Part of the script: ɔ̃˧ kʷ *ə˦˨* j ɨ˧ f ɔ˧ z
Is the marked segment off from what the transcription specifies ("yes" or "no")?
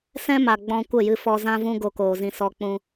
no